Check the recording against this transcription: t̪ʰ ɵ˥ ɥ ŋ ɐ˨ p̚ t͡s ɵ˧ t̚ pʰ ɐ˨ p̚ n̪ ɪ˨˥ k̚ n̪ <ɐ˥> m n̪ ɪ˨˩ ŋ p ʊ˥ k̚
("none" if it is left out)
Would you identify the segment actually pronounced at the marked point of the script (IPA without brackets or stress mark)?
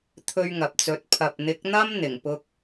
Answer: ɐ˥